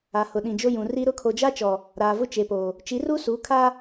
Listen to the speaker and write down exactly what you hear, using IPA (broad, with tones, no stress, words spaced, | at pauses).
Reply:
a˨hʊ˨ɗĩ˨d͡ʒo˦ jũ˨ri˦ ɾʊ˦˨kʰo˨d͡ʒa˦t͡ʃɔ˨ | ɾaː˨vʊ˦ t͡ʃe˨poː˨ | t͡ʃi˨˦ru˦su˨˦kʰa˦